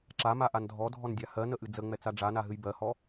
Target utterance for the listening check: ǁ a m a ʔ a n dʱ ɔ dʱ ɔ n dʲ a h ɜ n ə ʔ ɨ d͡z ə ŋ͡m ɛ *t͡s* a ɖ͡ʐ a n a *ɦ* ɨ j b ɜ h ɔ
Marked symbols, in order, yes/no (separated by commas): yes, yes